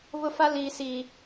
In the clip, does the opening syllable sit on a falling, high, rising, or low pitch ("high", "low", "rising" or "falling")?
high